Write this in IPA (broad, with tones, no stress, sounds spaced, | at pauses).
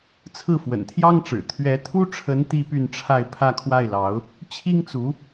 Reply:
t͡sʰ ɹ̩˥˩ f w ə̰˨˩ n t̪ʰ j ɑ˥ ŋ ʈ͡ʂ ɻ̩˨˩ t̪ʰ ɥ ɛ˧˥ t̪ʰ u˥ ʈ͡ʂʰ ə˧˥ n t̪ i˥ p y˥˧ n ʈ͡ʂʰ a˥˧ ɪ̯ pʰ ä˥˧ kʰ w a˥˩ ɪ̯ l ɑ˧˥ ʊ̯ | t͡ɕʰ i˥ ŋ t͡s u˧˥